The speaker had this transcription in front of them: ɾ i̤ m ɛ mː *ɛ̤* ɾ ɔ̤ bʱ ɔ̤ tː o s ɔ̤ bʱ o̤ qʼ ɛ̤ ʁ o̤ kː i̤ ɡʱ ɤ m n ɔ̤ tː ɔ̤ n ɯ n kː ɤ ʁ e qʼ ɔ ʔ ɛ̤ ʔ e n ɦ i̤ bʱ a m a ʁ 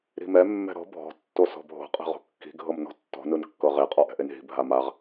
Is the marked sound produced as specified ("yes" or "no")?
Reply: yes